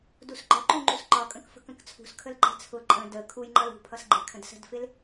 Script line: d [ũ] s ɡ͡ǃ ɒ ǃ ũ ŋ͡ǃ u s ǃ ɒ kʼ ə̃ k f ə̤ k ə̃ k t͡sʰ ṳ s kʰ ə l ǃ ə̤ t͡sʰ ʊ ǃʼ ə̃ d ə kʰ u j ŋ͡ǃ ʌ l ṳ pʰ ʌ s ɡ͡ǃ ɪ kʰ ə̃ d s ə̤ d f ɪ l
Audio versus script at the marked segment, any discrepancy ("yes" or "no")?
yes